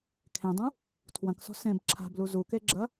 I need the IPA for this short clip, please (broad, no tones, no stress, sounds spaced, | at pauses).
kʰ ẽ dˤ ũ | tʰ w ɐ̃ k s ɔ̤ s ẽ b ǁʰ a̤ b l u z u k e ɡ͡ǁ ɐ